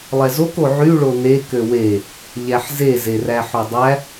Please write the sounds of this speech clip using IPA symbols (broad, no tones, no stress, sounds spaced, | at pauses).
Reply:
lˠ ɛ z o k o ʕ y ɭ o n e k ø w e | ʎ æ ħ z e z e r æ ħ o dˤ æ